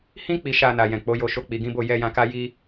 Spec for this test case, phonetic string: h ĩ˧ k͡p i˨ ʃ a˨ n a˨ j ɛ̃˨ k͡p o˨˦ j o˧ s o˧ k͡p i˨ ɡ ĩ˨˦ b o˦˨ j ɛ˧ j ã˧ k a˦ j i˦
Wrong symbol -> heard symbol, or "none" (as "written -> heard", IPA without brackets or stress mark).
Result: s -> ʃ